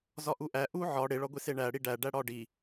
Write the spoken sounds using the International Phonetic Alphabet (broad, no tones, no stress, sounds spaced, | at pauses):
z ɒ ʔ u ʔ æ ʔ u ʕ ɒ ɽ e ɭ ɒ ɡʷ e s e ɳ æ ɽ i ɖ æ ɖ æ ɽ ɒ ɖ i